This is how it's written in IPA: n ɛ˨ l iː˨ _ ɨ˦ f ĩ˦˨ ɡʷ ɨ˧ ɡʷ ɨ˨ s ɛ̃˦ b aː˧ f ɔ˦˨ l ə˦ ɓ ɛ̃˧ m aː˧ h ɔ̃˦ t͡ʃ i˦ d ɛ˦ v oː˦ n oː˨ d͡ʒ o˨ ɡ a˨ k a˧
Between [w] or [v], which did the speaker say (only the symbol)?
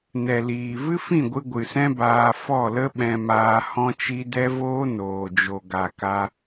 v